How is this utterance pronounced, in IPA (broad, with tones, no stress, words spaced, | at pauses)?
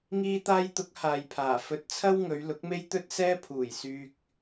ŋiː˧t̪aː˧jt̪ʊ˨˥k̚ haː˨jpʰaː˨˩ fɵ˨t̚t͡sʰɐ˥w ŋɵ˨˧ɥ lʊ˨˥k̚me˥j t̪ɵ˥t̚sɛː˥ pʰuː˨˩jsyː˧k̚